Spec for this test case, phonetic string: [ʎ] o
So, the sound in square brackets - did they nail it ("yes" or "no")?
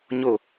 no